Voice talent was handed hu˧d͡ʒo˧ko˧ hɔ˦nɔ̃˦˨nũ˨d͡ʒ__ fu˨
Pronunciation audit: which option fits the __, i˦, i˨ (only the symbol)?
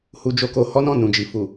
i˨